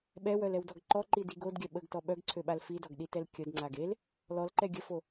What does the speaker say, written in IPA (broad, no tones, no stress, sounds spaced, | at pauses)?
ɓ ɛ w œ l ɛ w d ɔ ɡ ǃ ɔ ǃ i d i ɡ o d ɡʲ œ ɓ ə ɡ t ɔ ɓ œ ɡ ǀʰ ø ɓ a l f i d ɔ ɡ ɗ i t ɛ l kʲ ə d ŋ͡ǀ a ɡ e l | l ɔ l ǃ ɛ ɡʲ ə f o